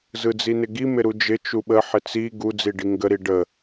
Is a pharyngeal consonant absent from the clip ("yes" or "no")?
no